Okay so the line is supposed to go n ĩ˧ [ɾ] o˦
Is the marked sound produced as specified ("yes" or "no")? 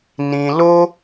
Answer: no